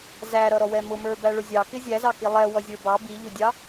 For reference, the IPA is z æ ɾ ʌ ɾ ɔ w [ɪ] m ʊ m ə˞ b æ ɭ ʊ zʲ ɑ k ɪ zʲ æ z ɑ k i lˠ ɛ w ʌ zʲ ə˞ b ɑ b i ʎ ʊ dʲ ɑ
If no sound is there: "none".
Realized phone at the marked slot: ɛ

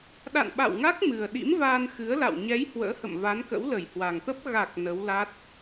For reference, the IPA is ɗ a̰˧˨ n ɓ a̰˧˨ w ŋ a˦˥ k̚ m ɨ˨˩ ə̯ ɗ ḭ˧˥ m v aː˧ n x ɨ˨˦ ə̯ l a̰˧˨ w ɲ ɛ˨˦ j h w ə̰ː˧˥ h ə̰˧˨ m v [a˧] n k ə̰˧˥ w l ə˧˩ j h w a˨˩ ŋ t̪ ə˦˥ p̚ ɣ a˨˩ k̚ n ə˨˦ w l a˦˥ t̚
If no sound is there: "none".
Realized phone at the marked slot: a˨˦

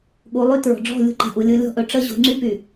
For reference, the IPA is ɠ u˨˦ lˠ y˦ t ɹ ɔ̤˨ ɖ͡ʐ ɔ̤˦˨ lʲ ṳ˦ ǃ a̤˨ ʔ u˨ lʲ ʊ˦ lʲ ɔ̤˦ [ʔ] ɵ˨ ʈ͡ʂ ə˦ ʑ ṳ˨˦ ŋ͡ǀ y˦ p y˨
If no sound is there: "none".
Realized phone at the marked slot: ʔ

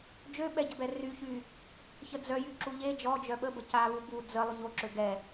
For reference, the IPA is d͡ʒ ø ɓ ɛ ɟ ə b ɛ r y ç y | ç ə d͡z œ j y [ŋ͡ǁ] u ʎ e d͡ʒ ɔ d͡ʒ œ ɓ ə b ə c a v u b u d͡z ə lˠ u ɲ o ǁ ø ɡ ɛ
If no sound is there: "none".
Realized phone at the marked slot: ǁ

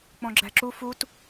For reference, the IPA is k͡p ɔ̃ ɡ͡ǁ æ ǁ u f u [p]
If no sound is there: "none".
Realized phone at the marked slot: t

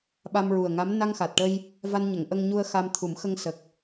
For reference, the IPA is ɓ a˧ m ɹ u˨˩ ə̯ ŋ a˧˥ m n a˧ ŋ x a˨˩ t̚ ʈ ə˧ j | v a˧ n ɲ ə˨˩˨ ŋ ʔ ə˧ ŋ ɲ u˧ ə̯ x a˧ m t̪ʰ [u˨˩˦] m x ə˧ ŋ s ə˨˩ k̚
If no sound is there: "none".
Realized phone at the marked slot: u˨˩˦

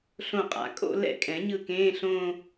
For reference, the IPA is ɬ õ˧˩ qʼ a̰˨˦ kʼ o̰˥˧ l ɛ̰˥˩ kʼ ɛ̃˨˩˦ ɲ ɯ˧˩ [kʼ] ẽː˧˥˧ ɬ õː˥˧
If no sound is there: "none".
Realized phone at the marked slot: k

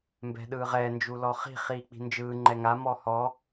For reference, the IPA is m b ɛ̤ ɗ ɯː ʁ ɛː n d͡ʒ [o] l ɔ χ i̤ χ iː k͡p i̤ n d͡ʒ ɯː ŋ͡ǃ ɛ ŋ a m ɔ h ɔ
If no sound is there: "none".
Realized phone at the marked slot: u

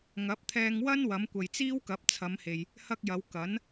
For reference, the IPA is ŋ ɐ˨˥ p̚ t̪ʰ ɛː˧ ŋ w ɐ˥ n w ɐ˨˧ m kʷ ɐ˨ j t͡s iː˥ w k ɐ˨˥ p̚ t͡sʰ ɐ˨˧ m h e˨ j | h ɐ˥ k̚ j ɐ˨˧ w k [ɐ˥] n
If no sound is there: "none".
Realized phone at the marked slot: ɐ˨˥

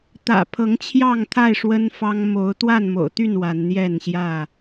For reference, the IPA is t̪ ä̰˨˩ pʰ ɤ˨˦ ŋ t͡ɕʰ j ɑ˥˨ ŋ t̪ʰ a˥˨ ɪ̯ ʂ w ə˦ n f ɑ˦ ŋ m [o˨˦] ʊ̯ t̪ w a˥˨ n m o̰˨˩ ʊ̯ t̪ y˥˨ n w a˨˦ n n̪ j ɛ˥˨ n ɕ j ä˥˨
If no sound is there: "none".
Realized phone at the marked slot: o˨˦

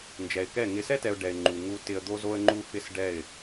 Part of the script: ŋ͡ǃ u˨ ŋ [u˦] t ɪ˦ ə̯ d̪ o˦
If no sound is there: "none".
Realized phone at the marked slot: u˦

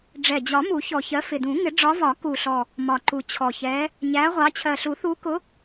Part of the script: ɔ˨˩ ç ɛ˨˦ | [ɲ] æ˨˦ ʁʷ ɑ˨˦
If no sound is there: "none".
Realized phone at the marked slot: ɲ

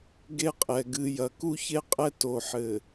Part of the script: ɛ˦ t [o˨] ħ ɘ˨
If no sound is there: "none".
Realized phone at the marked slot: o˨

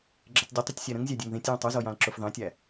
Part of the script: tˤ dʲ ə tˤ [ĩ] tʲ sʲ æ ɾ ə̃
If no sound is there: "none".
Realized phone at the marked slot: i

